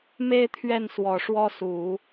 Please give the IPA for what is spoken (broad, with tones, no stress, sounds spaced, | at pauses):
m e˥ ɪ̯ t̪ʰ ɥ ɛ˥˩ n s w ɔ˨˩ ʂ w ɔ˥ s u˨˩˦